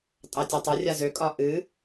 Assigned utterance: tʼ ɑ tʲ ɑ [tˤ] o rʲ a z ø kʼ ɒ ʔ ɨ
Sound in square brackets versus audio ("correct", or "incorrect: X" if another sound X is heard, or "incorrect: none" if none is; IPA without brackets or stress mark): correct